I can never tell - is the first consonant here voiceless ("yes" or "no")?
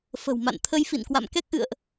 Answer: yes